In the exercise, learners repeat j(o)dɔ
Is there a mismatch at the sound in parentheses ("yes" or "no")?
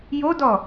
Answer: no